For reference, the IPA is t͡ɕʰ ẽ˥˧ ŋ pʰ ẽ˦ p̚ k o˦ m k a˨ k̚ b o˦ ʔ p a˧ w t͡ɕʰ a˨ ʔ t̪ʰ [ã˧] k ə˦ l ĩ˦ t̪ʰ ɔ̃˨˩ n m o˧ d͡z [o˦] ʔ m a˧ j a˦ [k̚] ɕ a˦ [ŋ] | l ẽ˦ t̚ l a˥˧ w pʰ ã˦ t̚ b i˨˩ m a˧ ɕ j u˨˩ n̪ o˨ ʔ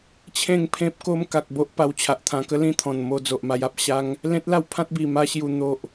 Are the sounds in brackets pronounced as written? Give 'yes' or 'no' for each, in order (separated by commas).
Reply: yes, no, no, yes